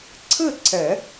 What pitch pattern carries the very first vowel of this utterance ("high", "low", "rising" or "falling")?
falling